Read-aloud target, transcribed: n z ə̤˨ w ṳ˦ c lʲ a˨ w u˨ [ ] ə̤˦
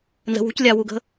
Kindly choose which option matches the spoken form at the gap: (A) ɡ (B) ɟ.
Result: A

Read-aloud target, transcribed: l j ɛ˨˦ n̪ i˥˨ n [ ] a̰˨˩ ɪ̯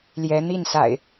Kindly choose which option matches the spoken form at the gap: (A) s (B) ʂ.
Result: A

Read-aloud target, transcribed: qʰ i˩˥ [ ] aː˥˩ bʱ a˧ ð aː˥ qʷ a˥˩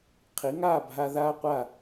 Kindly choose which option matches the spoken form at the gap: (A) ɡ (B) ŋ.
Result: B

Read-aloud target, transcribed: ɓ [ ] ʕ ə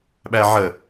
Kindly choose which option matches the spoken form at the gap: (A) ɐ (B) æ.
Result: B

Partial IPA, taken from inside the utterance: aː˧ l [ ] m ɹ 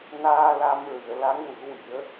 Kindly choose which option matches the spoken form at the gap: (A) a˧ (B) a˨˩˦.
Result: A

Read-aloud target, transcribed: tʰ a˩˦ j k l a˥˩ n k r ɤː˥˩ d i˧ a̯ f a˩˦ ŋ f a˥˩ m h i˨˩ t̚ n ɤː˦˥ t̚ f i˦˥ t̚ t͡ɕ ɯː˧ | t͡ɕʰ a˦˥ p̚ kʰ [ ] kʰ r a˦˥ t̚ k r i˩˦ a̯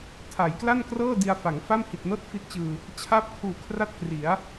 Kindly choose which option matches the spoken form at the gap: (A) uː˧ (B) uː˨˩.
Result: B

